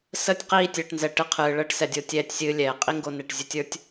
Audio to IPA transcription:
s ə˦˨ tʲ q iː˦˨ tʲ əː˨ ʈ n z ɛ˨ ʈ ɨ˧ qʰ ɨː˨ ɭ əː˦ ʈ s ɛ˨ dʲ o˧ tʲ ɛː˧ tʲ sʲ ɨː˧ lʲ ɛː˨ qʼ i˦ ŋ ɡ o˧ n e˨ ʈ zʲ ɨ˧ tʲ ə˞˦ tʲ

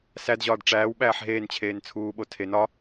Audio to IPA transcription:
s æ d ʑ ɒː d ʈ͡ʂ æː w ɓ æː ħ ɦ eː n t͡ɕʰ eː n t͡sʰ uː ɓ o tʰ e n ɒ

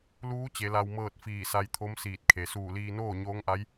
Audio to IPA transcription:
l uː˧˥ t͡ɕ e˩˧ l a˧ w m ɤː˥˨ t̚ f iː˧˩ s a˧ j t̪ʰ o˧˥ m s iː˧˩ t̚ kʰ e˩˧ s uː˧˩ l iː˧ n oː˥˨ ɲ oː˧˥ ŋ ʔ a˧˥ j

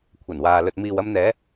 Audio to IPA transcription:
kʷʰ ɐ˨˩ n w aː˨ l ɵ˨ t̚ m iː˨ w ɐ˧ m n̪ ɛː˨˧

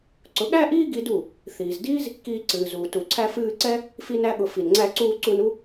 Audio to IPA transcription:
ǀ ʊ˨˦ ɠ æ˦ ʔ iː˦ ɡ i˧ d u˦˨ | θ iː˨ z d iː˦ z | k iː˧ ǀ ɨː˨ z uː˨ t u˨ ǀʰ æ˧ f ɨː˧ ǀ ɛ˦ | f i˦ n æ˦ ɠ ʊ˧ f i˨ n ŋ͡ǀ æ˧ ǀ uː˧ ǀ u˧ n u˦

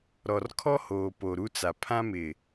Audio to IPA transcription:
ɾ ɔ˨ r kʰ ɔ˦ h oː˨ p o˨ ɾ u˦ t͡s a˨ pʰ ã˦ m ɪ˨

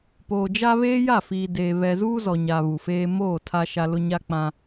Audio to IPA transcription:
p oː˨ d͡ʒ a˦ β eː˦ j a˦˨ f iː˨ d eː˨ β ɛ˨ z uː˦ z ɔ˨ ɲ a˨ β u˨ f eː˦ m oː˦˨ tʰ a˦ ʃ a˦ l ʊ˦ ɲ a˦ k͡p ã˦

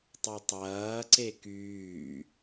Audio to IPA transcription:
tˤ o tˤ ɐː ǀ e k yː

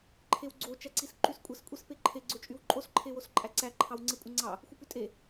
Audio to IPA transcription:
ǃʰ e w ɡ͡ǀ o t͡ʃ æ ǀ i s ǃ y s kʷʼ e s kʷʼ i s p e ǃʰ e ɡ͡ǀ ø t͡ʃʼ y w ǃʼ o s ǃʰ e w o s ǃʼ æ ǀ æ ǃʰ ɑ w ŋ͡ǀ e kʷʼ ɯ ŋ͡ǀ ɑ | xʷ ɯ p y tʼ e

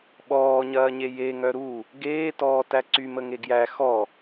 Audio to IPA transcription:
ɓ ɔː ɲ ɐː ɲ e j e ŋ œ ɾ u | ɡ eː t ɔː t æ ǀ y m ə ŋ e ɡ j æ x ɔ

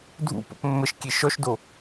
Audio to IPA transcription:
dʱ ṵ p o̰ p mː ə ʃ kʲ e ʃ ɔ ʃ d o

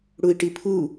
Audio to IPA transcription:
ɽ u i̯ ʈ i pʰ u

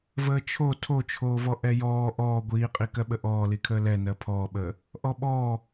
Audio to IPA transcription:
v əː t͡ʃʰ o tʰ o t͡ʃʰ oː v ɔ ʔ ɛ j ɔː ʔ ɔː ɡʷ iː qʼ i k ɜ ɓ ə ʔ ɔː l i kʰ əː l ɛ n ɜ pʰ ɔː ɓ əː | ʔ ɔ ɓ ɔː

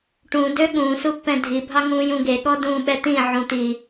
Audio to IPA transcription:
ʈ ũ d ø ɠ ũː s u pː ɛ̃ dʱ i bʱ ɑ ŋ ũː j ũ ɡ e ɠ ɔ d ũː ɓ ɛ t̪ ĩ ʕ ũ t̪ i

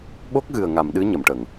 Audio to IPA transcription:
ɓ o˦˥ k̚ ɣ ɨ˨˩ ə̯ ŋ a˨˩˨ m ɗ ɨ˧˥ ɲ ə˨˩˨ m ʈ ə˨˩˨ ŋ

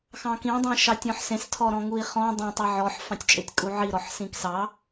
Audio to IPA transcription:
x ɑ̃ k ĩ dˤ ĩ ʃ ɑ tʲ ɔ̃ ħ s ẽ s tʰ ɔ ɾ ɔ̃ ŋ u i̯ χ ɔ̃ dˤ ẽ tˤ ɛ ʕ ɔ ħ f ɑ̃ tʲ t͡ʃʼ e tʲ kʼ u ʕ i ɾ ɔ ħ s ĩ k s ɑ

